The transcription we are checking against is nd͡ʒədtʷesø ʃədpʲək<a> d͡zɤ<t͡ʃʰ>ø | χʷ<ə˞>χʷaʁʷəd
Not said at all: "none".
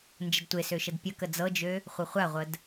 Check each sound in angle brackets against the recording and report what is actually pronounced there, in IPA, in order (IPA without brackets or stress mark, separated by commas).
ə, d͡ʒ, ɤ